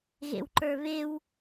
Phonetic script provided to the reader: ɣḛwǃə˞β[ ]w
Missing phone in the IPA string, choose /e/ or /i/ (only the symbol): e